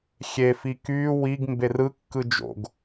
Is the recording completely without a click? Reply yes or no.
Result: yes